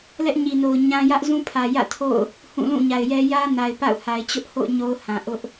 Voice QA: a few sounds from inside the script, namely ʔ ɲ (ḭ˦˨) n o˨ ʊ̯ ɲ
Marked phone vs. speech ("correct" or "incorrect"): incorrect